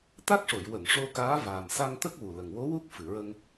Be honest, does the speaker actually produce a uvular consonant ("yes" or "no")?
no